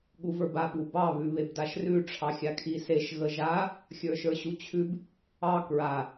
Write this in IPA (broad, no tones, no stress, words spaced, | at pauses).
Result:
ɠuvə˞ba ɓubɑ βʉβebdaʃrʉ ʈ͡ʂʰɑxʲakʰiseʃ ɣəʒa | xʲə˞ʃə˞ɕut͡ɕʰʉb | ɑ kɹa